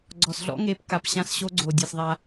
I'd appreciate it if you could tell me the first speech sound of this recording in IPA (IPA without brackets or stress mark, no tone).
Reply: ɡ͡ǀ